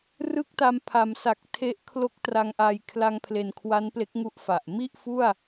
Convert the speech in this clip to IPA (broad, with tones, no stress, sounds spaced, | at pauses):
r ɯ˥˩ k̚ t a˧ m pʰ a˩˦ m s a˨˩ k̚ tʰ e˦˥ ʔ kʰ l o˦˥ k̚ t r a˧ ŋ ʔ a˧ j kʰ l a˧ ŋ pʰ l e˨˩ n kʰ w a˦˥ n p l e˦˥ k̚ ŋ u˦˥ ʔ f a˨˩ ʔ m i˥˩ ʔ f u˥˩ a̯